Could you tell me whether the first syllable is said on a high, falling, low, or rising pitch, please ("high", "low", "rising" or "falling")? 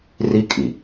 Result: high